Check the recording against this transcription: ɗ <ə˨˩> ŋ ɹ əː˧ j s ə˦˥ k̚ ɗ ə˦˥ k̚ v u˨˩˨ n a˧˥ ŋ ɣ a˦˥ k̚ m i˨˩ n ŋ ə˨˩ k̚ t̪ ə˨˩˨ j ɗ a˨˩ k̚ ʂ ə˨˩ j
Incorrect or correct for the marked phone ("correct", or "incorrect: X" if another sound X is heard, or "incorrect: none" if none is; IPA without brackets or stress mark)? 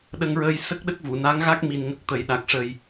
incorrect: ə˧